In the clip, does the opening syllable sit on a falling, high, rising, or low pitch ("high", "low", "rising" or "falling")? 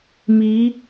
rising